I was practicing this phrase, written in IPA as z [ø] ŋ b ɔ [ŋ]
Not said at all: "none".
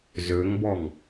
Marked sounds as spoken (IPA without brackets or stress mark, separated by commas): ø, ŋ